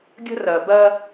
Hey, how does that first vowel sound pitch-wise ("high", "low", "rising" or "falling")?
high